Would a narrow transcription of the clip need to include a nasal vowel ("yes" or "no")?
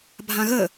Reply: yes